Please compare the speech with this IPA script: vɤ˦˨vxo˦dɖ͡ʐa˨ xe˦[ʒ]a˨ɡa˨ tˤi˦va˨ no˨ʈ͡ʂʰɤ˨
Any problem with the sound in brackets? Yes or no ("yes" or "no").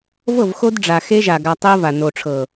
no